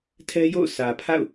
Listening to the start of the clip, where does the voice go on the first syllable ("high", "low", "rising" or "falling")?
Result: high